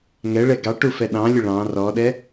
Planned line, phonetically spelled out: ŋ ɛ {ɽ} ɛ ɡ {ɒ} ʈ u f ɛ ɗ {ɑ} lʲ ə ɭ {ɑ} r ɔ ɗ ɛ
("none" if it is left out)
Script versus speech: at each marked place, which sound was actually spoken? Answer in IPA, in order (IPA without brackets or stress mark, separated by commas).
ɭ, ɑ, ɑ̃, ɑ̃